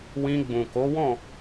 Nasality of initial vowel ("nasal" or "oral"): nasal